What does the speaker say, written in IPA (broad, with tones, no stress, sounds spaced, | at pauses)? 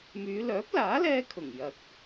m yː˨˧ l œː˨˥ p̚ l aː˨˥ l ɛː˧ kʰ ʊ˨˩ ŋ j ɐ˨ k̚